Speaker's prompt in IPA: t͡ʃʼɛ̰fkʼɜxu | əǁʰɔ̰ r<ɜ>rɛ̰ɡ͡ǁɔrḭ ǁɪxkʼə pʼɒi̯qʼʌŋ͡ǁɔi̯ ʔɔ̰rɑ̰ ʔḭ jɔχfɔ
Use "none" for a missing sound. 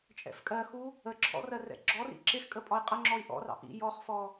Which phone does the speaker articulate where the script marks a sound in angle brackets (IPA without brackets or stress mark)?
ɜ